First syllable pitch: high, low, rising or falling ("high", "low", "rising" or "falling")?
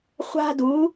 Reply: high